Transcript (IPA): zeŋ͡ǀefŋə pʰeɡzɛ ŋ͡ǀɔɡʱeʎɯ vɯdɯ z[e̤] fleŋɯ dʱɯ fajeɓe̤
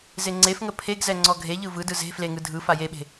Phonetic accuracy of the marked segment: correct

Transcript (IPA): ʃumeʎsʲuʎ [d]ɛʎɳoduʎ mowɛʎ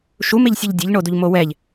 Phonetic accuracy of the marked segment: incorrect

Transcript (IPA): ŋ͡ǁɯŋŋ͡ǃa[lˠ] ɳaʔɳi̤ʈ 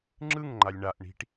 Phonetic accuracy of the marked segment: incorrect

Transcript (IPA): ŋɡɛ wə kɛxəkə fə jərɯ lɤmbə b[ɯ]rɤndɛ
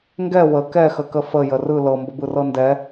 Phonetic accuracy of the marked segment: correct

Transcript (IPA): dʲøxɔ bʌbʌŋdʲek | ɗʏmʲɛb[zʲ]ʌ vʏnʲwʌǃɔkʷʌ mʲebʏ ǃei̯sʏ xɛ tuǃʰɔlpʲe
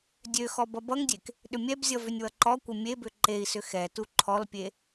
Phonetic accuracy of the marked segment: correct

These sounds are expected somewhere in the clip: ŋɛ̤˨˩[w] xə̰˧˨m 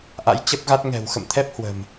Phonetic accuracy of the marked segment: correct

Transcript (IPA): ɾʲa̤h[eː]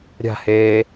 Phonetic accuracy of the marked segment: correct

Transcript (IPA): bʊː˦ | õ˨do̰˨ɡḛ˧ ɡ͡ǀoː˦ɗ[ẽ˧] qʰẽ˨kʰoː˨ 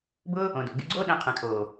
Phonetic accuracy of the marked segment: correct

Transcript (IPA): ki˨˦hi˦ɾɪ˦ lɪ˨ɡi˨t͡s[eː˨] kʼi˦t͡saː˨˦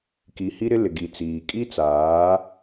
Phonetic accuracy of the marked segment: incorrect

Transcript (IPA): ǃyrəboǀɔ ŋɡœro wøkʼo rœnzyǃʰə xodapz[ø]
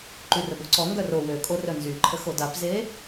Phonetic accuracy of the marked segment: incorrect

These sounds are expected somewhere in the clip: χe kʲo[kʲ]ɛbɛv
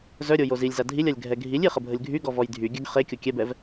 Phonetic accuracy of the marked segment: correct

